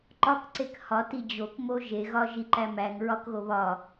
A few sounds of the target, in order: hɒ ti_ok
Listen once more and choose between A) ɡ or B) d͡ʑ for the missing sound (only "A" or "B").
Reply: B